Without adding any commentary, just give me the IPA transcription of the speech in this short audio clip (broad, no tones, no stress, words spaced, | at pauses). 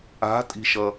a̤tʼi̤ʃʌ